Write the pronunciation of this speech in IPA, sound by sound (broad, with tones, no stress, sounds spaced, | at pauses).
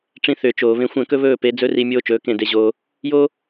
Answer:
ʈ͡ʂ ĩ˧ θ ʏː˨ t͡ʃ oː˨ β ẽ˧ xʷ ɛ̃˦˨ k ɵ˦ β ɵː˦˨ p e˨˦ d͡z ɵ˦ r i˧ mʲ oː˦ t͡ʃ ɵː˨˦ k ẽ˦˨ d e˧ ʑ oː˧ | j oː˦